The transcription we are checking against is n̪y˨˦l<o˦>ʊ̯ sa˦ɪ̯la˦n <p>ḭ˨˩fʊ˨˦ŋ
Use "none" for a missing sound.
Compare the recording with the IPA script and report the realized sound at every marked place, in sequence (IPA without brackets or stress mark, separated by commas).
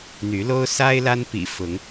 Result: o˦, p